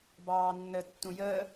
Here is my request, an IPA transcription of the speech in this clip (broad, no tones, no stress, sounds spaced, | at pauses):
b ɑː nː ə tː ũ j əː